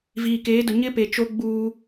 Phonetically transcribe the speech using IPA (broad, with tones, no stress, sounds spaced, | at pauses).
v iː˨ k eː˨˦ d ʊ˨ ɲ ɪ˦ p e˨ t͡ʃ o˦ ɡ͡b uː˦